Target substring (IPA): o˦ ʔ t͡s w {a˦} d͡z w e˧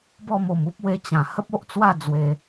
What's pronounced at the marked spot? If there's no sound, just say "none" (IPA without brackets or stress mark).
a˥˧